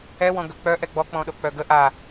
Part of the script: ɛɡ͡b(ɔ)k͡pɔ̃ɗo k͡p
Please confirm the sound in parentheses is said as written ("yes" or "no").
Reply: yes